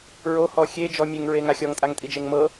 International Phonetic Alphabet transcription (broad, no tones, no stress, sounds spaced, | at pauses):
ɹ o h ɔ xʲ e d͡ʒ ɔ mʲ e ŋ ɹ e ŋ a xʲ ɔ ŋ tʼ a ŋ tʼ i d͡ʒ e ŋ m ɤ